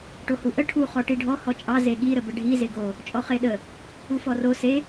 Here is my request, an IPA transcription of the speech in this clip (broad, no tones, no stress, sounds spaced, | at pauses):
ʈ o h u ʔ ə ʈʰ u χ ɔ ʈ i ɖʱ ɔ h ɔ t͡ʃʼ ɑ z e ɠ i ɾ ə b ə ɖʱ i z e ɡ o | t͡ʃʼ ɔ χ e ɗ ə | u f ɔ r o s e